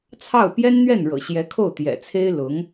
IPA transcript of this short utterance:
t͡sʰ ɑ˥˩ ʊ̯ p j ɛ˥ n n̪ ɥ ɛ˥˩ n ɻ ɤ̰˨˩ ɕ j ɛ˧˥ kʰ o˥˩ ʊ̯ t̪ j ɛ̰˨˩ t͡sʰ e˥ ɪ̯ l ʊ˧˥ ŋ

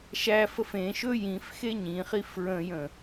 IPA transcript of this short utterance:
ʃ æ f ə f ẽ ʃ ɵ j ĩ f x e ɲ ĩ χ i f ɹ ə̃ j ə̃

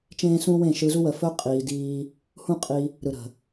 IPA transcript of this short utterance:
t͡ʃ ẽː˦ s ũ˦ w ẽ˦˨ ʃ ɯ˧ z u˦ w ə˨ f ɵ˦ qʼ iː˧ d iː˦ | h ũ˦ qʼ i˧ | ɾ ɯ˨ ɾ ə̤˨

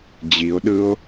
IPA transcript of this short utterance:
d͡ʑ i o̯ ɗ ɯ o̯

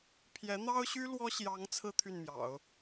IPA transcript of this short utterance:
pʰ j ɛ˧˥ n̪ ɑ˥ ʊ̯ ɕ y˥ l w ɔ˥ ɕ j ɑ˧˥ ŋ t͡sʰ ɹ̩˥ t̪ʰ y˥˩ n m j ɑ̰˨˩˦ ʊ̯

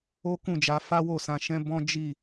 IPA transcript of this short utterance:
o˦ k ũ˦˨ d͡ʒ a˨˦ f a˦ w o˦˨ s ã˨˦ ʃ ɛ̃˦ b ɔ̃˦ d͡ʒ i˦˨

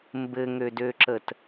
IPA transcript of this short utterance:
m b ɘ ŋ ø d ø ǁ ə t

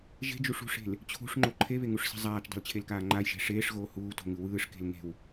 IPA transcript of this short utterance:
ʒ e̤ d͡ʒ u ʂ ṳ ʂ e̤ l | t͡ɕʰ ṳ ʂ ŋ͡ǃ o ǃʰ e β e ŋ u ʂ s e̤ zˤ aː t͡ʃ dˤ e̤ l t͡ɕʰ e l k aː ŋ͡ǃ a j ʒ e̤ ʂ eː ʂ ɣ oː h uː t o̤ ŋ ɯ w ɯː ʂ k e̤ l ŋ e̤ w

